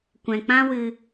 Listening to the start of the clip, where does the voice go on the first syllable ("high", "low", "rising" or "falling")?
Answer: low